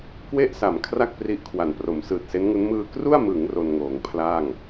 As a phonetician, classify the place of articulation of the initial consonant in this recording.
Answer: velar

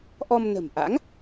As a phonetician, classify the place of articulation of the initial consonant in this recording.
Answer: glottal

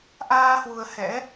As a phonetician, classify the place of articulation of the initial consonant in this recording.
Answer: glottal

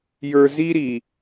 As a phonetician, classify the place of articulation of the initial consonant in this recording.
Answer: palatal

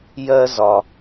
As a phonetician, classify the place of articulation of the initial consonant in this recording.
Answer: palatal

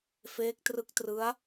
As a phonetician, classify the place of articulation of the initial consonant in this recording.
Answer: labial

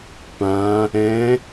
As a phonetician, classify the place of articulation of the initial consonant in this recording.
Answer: labial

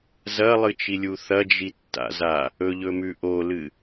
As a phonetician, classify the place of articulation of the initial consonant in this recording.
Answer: alveolar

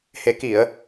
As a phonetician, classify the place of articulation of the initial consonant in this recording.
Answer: glottal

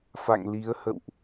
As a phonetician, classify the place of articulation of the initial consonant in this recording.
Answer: labial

